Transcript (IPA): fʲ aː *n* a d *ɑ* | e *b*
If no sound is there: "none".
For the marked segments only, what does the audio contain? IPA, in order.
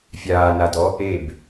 n, ɔ, b

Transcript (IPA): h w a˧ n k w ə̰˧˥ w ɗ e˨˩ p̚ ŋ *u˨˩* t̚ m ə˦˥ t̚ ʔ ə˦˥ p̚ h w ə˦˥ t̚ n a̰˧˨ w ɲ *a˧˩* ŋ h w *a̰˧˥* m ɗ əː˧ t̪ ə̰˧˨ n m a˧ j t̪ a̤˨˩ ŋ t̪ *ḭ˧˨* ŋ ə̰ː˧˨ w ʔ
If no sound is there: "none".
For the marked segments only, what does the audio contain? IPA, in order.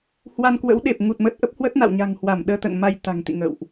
u˨˩, a̤˨˩, a˧˩, ḭ˧˨

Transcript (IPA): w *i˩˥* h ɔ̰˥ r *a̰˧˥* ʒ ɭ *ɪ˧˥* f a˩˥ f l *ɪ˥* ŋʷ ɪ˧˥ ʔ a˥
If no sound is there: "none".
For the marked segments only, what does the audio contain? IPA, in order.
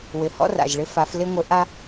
ɪ˩˥, a̰˨˩, ɪ˧˥, ɪ˥

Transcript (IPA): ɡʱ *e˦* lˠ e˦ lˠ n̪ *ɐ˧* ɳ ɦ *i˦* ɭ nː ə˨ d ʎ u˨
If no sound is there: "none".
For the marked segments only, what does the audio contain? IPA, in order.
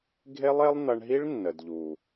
e˦, ɐ˧, i˦

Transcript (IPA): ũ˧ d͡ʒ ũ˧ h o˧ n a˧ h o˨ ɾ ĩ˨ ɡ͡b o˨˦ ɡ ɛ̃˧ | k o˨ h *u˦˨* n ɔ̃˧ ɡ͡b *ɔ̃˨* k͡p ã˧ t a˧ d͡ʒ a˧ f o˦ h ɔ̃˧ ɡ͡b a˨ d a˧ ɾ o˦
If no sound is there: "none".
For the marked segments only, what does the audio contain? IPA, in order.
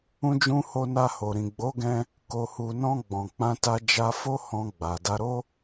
u˨, ɔ̃˨

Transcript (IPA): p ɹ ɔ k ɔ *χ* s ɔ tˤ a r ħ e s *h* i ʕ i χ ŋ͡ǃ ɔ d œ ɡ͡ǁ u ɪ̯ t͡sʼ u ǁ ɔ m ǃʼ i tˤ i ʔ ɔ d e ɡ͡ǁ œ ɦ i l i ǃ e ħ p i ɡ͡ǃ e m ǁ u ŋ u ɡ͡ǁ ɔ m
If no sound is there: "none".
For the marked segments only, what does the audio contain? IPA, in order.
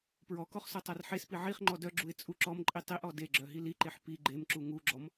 χ, p

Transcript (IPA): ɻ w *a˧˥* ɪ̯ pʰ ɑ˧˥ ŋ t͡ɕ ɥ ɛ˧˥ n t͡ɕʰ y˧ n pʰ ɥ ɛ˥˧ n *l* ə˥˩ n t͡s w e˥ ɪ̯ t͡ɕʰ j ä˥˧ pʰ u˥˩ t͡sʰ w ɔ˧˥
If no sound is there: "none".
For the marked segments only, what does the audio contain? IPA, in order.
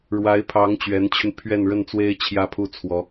a˧˥, ɻ

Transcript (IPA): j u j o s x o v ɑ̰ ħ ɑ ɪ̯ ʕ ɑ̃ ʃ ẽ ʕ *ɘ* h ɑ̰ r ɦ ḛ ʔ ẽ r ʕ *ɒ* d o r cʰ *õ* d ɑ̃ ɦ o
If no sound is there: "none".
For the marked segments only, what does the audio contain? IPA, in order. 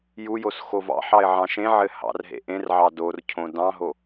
ɘ, ɑ, õ

